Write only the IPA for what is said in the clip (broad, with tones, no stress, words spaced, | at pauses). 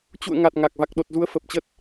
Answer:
t͡ɕṵ˧˨ə̯ŋa˨˩t̚ ŋa˨˩k̚ va˨˩k̚ɗo˨˩t̚zu˨˦ə̯ fə˨˩p̚t͡ɕə˦˥t̚